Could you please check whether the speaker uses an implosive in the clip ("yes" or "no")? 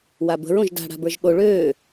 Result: yes